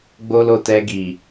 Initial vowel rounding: rounded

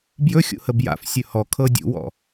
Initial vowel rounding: rounded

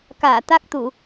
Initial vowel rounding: unrounded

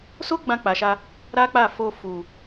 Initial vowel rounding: rounded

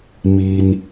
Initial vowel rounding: unrounded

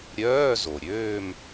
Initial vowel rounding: rounded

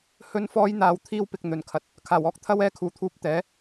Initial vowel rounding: rounded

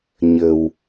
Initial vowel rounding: unrounded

